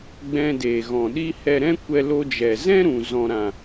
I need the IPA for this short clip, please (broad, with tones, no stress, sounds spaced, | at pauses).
ɡ͡b ɛ̃˧ d eː˨ ɣ ɔ̃˨ ɗ i˦ h ɛ˧ ɾ ɛ̃˦ kʷ ɛ˧ l o˧ d͡ʒ ɛ˨ z ɛ̃˦ ɾ ũ˨ z ɔ̃˨ ɾ ã˨